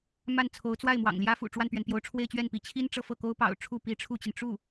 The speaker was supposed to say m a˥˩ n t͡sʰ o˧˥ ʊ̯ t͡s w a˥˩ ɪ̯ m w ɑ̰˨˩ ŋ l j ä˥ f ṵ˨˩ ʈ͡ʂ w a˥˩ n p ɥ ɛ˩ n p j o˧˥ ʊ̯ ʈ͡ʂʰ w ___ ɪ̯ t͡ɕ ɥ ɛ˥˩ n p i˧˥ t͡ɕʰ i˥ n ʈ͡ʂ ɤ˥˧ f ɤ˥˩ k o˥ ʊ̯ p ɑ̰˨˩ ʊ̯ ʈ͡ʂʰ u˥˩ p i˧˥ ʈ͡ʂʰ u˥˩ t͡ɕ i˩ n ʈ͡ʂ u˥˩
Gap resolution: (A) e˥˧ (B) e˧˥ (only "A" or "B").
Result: A